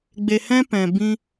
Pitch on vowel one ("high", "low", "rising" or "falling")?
low